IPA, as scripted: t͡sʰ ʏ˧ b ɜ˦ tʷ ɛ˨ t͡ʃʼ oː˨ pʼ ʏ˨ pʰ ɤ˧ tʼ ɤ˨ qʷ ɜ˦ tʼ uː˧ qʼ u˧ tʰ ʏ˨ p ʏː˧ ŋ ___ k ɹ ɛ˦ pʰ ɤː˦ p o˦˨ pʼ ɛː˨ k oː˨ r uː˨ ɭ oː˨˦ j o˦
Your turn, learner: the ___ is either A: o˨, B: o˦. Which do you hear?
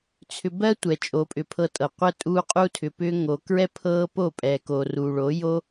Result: A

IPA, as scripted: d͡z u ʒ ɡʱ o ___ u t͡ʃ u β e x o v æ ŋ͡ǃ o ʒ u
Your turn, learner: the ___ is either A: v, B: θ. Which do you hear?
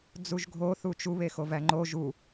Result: B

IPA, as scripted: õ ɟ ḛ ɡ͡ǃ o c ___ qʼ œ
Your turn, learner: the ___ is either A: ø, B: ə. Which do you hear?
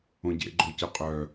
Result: B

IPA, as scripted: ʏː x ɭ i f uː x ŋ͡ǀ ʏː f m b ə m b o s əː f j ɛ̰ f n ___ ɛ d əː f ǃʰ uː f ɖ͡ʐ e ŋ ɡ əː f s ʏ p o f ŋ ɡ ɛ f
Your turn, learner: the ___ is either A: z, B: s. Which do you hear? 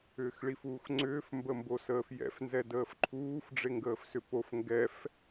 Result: A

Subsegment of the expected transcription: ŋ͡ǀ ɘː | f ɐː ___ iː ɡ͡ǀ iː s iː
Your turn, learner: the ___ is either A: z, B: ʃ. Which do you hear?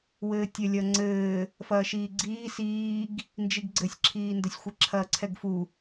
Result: B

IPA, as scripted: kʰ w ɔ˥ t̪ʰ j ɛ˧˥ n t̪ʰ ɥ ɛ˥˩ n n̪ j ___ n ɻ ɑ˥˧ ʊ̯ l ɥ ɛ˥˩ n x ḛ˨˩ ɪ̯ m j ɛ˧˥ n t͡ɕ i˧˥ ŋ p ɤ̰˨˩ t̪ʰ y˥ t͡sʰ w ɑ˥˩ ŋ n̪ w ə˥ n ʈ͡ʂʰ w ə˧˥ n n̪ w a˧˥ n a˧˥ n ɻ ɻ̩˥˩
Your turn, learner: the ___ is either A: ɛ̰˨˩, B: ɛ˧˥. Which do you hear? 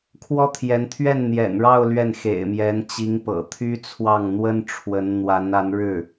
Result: A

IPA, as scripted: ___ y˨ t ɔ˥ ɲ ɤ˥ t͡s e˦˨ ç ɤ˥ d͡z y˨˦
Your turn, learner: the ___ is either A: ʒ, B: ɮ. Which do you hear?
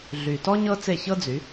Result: B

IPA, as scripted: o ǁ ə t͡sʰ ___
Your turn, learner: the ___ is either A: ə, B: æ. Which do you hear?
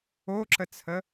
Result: A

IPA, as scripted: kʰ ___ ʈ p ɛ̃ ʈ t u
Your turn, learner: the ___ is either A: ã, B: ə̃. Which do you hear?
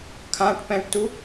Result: A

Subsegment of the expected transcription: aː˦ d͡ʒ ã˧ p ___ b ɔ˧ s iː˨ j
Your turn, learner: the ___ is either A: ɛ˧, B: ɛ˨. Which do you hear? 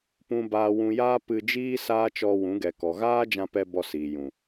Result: A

